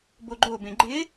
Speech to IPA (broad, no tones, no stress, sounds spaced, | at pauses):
b o ɡ͡ǃ o b ẽ ɡ͡ǃ ɪ